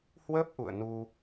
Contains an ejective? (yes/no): no